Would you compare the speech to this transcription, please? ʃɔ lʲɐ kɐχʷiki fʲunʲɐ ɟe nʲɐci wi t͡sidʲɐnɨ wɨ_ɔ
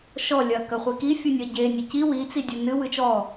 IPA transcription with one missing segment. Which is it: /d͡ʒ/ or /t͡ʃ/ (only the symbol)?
t͡ʃ